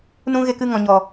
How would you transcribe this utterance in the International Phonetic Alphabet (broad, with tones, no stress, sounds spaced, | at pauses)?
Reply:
n ũ˦ ɣ e˧ k ɨ˦˨ ŋ ɔ̃˨ ɲ ɔ˨